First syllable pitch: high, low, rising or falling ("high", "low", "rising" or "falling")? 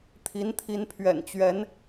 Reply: rising